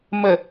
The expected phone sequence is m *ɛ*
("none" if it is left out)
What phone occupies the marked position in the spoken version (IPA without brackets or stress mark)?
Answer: ə